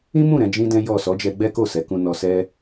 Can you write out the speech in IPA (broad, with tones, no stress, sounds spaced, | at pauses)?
ĩ˦ m ũ˦˨ ɾ ɛ̃˨˦ d͡ʒ ĩ˦ d ɛ̃˦ j ɔ˦˨ s ɔ˨˦ d͡ʒ ɛ˧ ɡ͡b ɛ˦ k o˦˨ s ɛ˨˦ k ũ˧ n ɔ˧ s ɛ˦